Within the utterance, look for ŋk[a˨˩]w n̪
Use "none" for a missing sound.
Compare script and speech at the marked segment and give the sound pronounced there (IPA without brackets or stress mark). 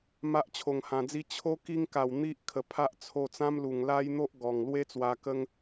a˨˩